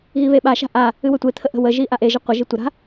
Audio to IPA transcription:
ɣ i β e ɓ a ʃ a̤ ʔ a | ɨ w ɵ tʷ e t̪ʰ ə ʔ ə̤ w ə ʒ i ʔ a ʔ e ʒ ə qʷ ə ʒ i tʷ ə ɾ a̤

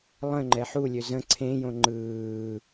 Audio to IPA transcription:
lˠ ə̃ ŋ͡ǃ ɛ ħ u lʲ ø z ə̃ ǀʰ ẽ j õ ŋ͡ǃ ɯː

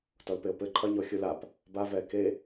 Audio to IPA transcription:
t ɔ l p e o̯ p ɘ ǃʰ ɐ ɲ ɔ xʲ u l a p | b a v ɛː k e

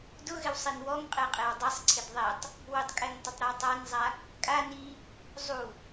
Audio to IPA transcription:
d ʊ ɣ ɪ w sˤ i n w ɔ ŋ qʼ e qʼ e w dˤ ɛ sˤ ǀʰ ɪ d ðˤ ɛ tˤ | w ʊ tˤ kʼ ɛ ŋ tˤ ɪ tˤ ɾ ɔ w tˤ a n zˤ a | kʼ a n i | zˤ u

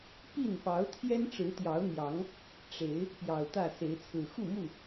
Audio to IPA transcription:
p i˥˨ n p ɑ˨˦ ʊ̯ t̪ʰ j ɛ˦ n ʈ͡ʂ ɻ̩˨˦ t̪ j ɑ˨˦ ʊ̯ n̪ j ɑ˨˦ ŋ | ʈ͡ʂ e˨˦ ɪ̯ | p j ɑ˨˩ ʊ̯ t̪ ä˥˨ s e˨˦ ɪ̯ t͡sʰ ɹ̩˨˩ x u˥˨ m u˥˨

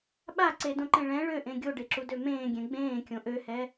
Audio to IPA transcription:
ɓ a ǀ e d õ ǃ ẽ ɭ ɛ̃ ɭ ø ʔ ẽ ɡʲ o ɖ e ǁ u d ø m ẽː ɡʲ ɛ̃ ɡ͡b ẽː kʲ õ ʔ ø h ɛ

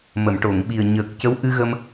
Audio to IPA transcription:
m ə˨˩˨ m ʈ o˨˩˨ ŋ ɓ i˨˩ ə̯ ɲ əː˨˩ k̚ c ə˧˥ w ʔ ɨ˧ ɣ ə˧ m

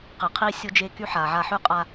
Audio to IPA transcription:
q ɪ˨ qʰ i˦ sʲ o˦ d͡ʒ e˦ k y˦ ħ a˨ ʕ a˧ ħ y˦ qʼ a˧

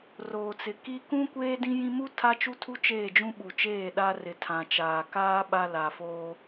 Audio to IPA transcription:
r oː˨ t͡s ɪ˨ k i˦ k ũ˦ kʷ eː˦ d ĩ˦ j ĩ˦ m u˦ tʰ a˦ t͡ʃ u˦ tʰ u˦ t͡ʃ eː˦˨ d͡ʒ ũ˦ ɓ u˨ t͡ʃ eː˦˨ ɗ a˦ r ɪ˨ tʰ ã˨ t͡ʃ aː˨ k aː˦ ɓ a˦ l a˨ f oː˦

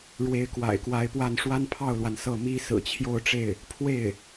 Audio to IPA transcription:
ɻ w e˧˥ ɪ̯ k w a̰˨˩ ɪ̯ k w a˧˥ ɪ̯ p w a˥˩ n ʂ w a˥ n pʰ ɑ˥˩ ʊ̯ l w a˩ n s ɤ˥˩ m i˥ s ɹ̩˨˩ t͡ɕʰ j o˥˧ ʊ̯ ʈ͡ʂ e˥˩ ɪ̯ | pʰ w e˥˩ ɪ̯

